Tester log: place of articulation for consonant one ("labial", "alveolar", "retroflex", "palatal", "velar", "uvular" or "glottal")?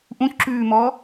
glottal